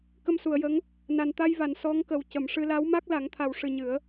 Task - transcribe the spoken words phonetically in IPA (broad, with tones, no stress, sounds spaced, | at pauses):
k ə˧ m s u˨˩˨ ə̯ j ə˧˥ ŋ | n a˨˩ n t̪ a˧ j v a˨˩˨ n s ɔ˧˥ ŋ k ə˨˩ w c ə˨˩˨ m ʂ ɨ˧ l a˧˥ w m a˦˥ k̚ l a˨˩˦ ŋ t̪ʰ a˨˩ w ʂ ɨ˨˩ ɲ ɨ˨˩˦ ə̯